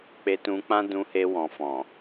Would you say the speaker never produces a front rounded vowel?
yes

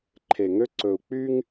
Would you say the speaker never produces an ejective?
yes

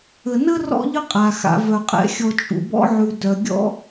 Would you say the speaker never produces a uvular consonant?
no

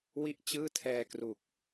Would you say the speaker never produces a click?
yes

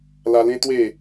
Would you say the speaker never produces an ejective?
yes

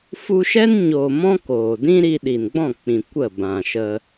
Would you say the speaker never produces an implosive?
no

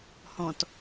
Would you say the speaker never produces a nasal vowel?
no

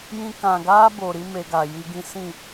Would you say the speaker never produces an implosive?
yes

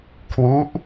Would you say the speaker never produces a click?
yes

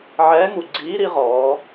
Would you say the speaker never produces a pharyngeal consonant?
no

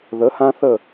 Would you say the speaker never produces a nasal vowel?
no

